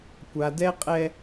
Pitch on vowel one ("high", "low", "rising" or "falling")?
high